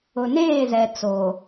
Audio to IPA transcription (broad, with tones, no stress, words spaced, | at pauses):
ʊ˨neː˦˨zɛ˨ t͡soː˨